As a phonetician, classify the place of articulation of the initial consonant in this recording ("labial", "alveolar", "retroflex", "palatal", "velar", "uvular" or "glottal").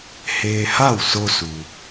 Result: glottal